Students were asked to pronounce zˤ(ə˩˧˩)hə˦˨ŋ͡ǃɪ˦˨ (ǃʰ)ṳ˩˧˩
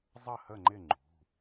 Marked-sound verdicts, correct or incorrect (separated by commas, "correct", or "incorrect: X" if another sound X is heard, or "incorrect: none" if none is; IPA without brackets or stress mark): incorrect: ə˦˨, incorrect: ŋ͡ǃ